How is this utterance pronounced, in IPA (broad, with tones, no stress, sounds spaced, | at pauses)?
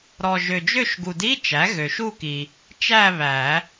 ɾ ɔ˨ ʒ ø˨ d͡ʒ ø˥˧ ʃ ɡ u˨ d i˧˥˧ t͡ʃ æ˩˥ ɣ ø˨ ʃ u˥˧ k i˨ | t͡ʃ æ˥˧ β æ˨˩˦